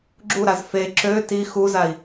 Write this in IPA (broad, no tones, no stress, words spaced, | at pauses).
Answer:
ɡ͡ǁuɾaz fe ǁø ti xuzai̯